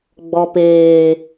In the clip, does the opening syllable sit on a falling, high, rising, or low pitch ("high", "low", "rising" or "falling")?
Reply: low